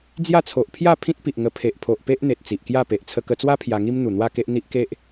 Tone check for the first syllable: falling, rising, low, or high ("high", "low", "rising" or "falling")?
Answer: falling